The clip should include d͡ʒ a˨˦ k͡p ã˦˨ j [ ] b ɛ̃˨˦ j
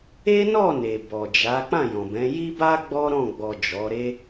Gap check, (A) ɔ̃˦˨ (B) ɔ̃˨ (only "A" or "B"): B